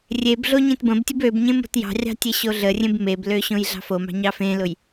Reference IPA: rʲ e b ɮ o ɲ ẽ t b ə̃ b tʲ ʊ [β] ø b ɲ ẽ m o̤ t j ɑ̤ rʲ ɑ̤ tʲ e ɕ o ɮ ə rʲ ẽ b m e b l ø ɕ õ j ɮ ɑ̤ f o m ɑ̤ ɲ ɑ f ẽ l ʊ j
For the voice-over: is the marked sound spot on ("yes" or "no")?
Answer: no